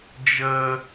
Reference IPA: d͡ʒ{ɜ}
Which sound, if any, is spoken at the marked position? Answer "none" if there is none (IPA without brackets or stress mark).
ɜ